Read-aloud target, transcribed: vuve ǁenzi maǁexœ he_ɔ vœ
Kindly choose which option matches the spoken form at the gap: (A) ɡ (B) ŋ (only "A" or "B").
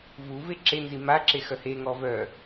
B